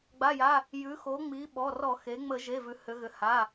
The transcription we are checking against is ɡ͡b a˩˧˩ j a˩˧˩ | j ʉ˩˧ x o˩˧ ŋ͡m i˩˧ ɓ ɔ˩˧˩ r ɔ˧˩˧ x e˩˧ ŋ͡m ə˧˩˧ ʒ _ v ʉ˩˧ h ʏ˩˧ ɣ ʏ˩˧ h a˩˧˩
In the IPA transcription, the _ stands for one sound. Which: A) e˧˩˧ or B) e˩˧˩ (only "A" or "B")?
B